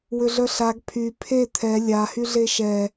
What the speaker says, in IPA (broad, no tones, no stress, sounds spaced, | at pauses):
w ʏ ɮ œ ɬ a ɡ pʰ y pʰ e t̪ʰ ɛ lʲ a h y ɮ e ʃ ɛ